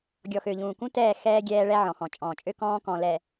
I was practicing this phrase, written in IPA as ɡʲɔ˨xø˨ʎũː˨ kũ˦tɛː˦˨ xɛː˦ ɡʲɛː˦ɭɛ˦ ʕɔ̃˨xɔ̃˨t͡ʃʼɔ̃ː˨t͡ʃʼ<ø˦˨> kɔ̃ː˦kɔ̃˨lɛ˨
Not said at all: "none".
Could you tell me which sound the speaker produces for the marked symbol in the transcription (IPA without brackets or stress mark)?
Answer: ø˦